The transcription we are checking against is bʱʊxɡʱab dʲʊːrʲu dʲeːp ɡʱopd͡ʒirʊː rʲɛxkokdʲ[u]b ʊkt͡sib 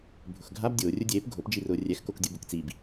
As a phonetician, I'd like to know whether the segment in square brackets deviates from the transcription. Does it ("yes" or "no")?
no